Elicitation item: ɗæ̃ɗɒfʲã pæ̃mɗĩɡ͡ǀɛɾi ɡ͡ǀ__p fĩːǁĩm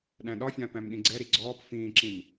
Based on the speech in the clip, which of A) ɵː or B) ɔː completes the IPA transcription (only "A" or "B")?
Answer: B